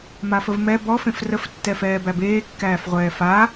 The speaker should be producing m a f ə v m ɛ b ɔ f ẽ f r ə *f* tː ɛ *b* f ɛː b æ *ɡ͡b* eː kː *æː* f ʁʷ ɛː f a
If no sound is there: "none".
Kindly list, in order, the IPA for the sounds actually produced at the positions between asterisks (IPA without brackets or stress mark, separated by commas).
f, none, b, æː